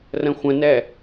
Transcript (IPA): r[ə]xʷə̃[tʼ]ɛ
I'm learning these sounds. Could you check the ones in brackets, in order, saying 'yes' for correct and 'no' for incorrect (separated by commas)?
no, no